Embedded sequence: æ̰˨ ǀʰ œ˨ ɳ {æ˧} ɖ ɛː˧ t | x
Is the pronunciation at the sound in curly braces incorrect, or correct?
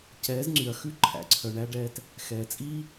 correct